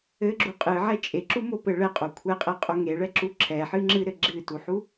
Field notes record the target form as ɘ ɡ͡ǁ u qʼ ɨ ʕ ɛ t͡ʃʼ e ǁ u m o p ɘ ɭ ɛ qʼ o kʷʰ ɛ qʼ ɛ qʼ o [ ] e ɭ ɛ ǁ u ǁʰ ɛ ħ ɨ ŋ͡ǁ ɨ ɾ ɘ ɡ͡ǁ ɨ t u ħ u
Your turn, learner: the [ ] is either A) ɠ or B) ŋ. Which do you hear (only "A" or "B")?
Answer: B